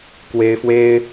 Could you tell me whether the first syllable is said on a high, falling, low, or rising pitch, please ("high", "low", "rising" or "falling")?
high